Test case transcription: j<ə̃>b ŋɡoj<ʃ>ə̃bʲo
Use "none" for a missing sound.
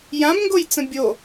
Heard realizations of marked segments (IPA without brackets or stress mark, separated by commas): ã, t͡s